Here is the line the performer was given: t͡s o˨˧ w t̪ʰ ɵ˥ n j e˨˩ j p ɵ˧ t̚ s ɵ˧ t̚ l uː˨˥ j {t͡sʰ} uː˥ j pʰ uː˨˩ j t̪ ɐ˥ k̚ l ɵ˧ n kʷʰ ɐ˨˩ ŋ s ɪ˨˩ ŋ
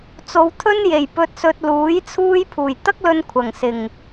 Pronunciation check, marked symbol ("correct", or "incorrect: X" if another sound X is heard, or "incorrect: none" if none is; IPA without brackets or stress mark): correct